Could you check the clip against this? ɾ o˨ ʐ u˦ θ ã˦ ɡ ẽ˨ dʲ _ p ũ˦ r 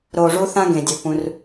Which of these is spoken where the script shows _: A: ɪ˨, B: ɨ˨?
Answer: B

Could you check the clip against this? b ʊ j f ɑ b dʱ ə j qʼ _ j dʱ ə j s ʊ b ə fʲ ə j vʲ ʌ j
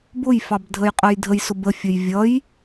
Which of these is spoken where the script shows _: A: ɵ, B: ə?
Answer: B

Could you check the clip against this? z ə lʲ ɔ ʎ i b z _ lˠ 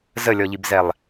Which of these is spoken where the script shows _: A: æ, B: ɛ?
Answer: B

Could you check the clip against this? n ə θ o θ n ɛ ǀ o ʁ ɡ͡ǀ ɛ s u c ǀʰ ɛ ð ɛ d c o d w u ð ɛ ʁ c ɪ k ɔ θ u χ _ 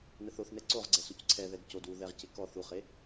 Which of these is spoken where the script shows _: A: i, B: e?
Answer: B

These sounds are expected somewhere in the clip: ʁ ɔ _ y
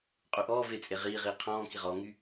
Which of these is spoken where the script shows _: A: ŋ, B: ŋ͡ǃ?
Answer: A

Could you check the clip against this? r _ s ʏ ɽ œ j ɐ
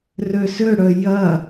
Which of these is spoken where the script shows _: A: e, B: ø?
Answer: B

